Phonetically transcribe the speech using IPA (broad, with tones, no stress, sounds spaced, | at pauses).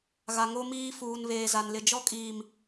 ɣ a˨ ŋ o˦ m iː˦ f uː˨ n β eː˨ z a˨ n l ɪ˨ d͡ʒ ɔ˦ kʼ iː˨ m